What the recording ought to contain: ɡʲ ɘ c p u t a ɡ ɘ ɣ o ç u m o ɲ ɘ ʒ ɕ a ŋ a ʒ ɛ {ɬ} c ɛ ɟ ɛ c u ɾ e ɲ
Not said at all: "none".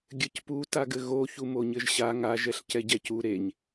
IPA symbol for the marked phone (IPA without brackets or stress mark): ɬ